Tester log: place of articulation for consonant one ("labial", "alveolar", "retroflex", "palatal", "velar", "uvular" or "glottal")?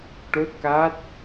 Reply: retroflex